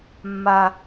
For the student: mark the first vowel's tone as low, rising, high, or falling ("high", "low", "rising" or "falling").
low